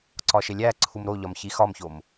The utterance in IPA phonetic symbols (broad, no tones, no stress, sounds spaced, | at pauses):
ǀ ɒ ʃ e lʲ æ ǀʰ u m ɾ o ʎ ɒ m ç i x ɒ m ç o m